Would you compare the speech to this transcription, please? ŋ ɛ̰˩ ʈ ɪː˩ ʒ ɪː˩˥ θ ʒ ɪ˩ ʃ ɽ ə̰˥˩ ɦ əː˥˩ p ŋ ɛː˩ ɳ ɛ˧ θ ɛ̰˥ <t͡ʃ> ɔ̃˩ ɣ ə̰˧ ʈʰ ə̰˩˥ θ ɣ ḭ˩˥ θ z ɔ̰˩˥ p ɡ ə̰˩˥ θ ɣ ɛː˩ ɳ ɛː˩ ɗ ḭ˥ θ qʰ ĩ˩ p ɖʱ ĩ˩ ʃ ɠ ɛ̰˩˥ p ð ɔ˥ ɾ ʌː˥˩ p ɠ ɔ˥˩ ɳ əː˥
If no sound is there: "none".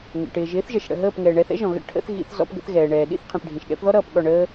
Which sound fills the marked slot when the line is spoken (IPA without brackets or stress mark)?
ʒ